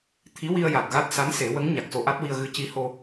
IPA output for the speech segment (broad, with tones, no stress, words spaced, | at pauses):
t̪ʰi˧˥wi˧ə̯ja˨˩t̚ ɣa˦˥t̚sa˧˥nse˨˩˦wə˧˥ŋ ɲa˨˩k̚so˧ʔa˦˥t̚wi˧ə̯ ɣɨ˧˥ci˧˥ho˧